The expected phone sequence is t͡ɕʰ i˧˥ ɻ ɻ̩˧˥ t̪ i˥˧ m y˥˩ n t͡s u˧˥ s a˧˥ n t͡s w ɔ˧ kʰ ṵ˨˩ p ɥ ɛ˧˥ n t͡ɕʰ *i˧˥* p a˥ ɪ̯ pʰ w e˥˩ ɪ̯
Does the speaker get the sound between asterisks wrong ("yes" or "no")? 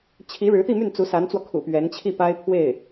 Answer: yes